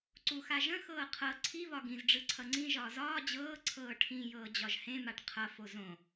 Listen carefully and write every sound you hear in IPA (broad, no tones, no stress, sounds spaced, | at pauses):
ǀ u x a ʒ ə̃ x ɤː qʰ ɤ ǀʰ i β ɒ ɡ ĩ z ɖ͡ʐ ɯ ǀʰ ʌ ŋ͡ǀ ĩ ʒ ɒː z ɒː d͡ʑ ɤː ǀʰ ɤː ʈʰ ĩ j ɤː d͡ʑ ɒ ʒ h ẽ m a ʈ qʰ ʌ f o z õ